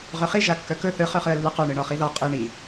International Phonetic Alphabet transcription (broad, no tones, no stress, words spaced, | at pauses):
ʁœχi ʒakːœkɵ θɯ χœχɯə̯lːɯqœ ɳɯɳɔχiðɔ qʼi ɳi